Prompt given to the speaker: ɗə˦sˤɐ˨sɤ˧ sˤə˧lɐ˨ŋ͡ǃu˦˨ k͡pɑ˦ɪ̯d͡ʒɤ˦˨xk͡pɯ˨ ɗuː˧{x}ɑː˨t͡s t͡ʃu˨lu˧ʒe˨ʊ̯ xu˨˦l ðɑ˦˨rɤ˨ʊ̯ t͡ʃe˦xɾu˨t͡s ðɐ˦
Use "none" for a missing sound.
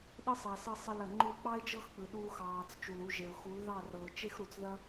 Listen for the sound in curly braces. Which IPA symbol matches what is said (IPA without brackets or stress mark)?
x